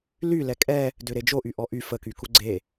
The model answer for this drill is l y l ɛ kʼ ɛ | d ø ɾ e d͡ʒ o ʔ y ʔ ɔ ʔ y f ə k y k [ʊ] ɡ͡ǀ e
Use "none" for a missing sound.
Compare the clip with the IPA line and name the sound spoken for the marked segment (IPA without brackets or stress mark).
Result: u